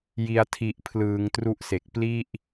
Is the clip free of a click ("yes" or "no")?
yes